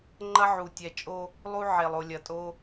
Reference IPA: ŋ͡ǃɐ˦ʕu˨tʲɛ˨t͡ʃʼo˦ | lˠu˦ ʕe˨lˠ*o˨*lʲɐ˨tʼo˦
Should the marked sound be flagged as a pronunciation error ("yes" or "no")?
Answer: no